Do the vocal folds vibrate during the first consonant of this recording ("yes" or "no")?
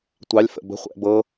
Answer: no